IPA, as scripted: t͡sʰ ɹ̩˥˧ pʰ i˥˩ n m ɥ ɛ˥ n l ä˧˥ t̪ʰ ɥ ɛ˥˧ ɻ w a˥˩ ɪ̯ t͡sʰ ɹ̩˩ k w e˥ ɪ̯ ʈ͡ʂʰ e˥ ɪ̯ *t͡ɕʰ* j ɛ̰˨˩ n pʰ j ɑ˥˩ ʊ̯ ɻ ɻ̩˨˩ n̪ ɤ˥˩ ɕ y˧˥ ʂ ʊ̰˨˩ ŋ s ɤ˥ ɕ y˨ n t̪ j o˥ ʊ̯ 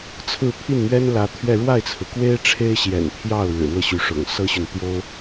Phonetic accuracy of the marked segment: incorrect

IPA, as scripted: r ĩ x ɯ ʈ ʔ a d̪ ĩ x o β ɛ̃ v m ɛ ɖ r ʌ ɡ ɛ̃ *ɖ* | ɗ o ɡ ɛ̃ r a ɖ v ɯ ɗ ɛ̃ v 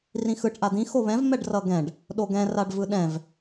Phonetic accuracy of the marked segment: correct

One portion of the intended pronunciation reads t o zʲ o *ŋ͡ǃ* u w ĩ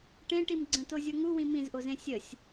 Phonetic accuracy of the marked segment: incorrect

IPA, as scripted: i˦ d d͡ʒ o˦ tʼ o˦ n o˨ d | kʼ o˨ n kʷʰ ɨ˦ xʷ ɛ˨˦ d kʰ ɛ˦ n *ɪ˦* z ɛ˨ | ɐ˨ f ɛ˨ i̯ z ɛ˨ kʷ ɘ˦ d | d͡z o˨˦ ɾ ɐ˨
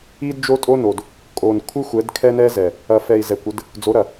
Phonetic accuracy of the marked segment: incorrect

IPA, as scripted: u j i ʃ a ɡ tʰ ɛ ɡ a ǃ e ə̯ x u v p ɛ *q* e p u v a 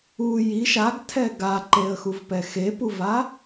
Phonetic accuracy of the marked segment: incorrect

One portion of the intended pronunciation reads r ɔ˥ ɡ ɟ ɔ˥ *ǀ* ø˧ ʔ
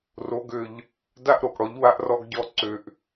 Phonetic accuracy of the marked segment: correct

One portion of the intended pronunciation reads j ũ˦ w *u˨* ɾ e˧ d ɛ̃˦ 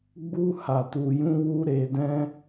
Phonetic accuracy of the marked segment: incorrect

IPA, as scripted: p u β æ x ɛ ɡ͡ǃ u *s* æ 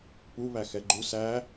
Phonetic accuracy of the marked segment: correct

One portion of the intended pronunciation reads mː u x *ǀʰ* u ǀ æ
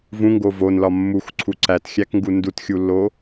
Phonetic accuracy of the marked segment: correct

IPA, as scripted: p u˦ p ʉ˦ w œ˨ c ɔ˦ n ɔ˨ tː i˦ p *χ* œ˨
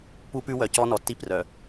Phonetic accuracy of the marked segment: incorrect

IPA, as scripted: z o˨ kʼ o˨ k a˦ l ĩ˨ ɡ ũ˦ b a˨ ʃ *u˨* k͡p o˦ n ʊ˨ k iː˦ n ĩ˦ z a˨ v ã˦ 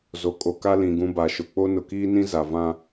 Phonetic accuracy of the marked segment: incorrect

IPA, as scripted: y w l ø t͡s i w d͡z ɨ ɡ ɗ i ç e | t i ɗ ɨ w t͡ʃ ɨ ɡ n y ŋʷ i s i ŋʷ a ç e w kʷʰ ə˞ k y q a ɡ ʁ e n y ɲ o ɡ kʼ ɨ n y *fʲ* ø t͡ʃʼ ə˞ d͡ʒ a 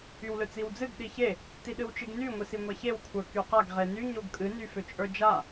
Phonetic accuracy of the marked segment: incorrect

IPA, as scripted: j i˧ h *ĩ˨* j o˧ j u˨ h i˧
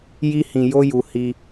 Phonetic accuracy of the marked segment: correct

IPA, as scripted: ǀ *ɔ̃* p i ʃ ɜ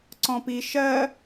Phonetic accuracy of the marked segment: correct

